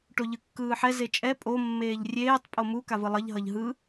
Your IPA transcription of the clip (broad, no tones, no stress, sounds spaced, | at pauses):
ʈ o ʎ ɯ kː ɯː ħ ɛ z e t͡ʃʼ ɛ pʼ o mː eː ʎ rʲ eː tˤ pʼ o m u k a v ɯ lˠ ʌ ʎ ɦ ʌ ʎ ɦ ɯ